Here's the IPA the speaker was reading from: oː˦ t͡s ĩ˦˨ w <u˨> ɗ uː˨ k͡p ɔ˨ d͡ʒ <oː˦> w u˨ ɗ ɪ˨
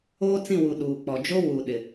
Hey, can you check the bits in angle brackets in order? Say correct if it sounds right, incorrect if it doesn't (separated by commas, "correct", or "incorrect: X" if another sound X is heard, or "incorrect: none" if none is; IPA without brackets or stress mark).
correct, incorrect: o˦